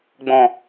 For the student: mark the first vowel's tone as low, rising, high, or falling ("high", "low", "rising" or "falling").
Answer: low